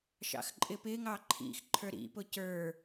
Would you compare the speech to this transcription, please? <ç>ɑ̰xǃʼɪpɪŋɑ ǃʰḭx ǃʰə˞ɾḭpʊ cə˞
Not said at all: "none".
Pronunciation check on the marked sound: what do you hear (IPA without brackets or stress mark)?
ʃ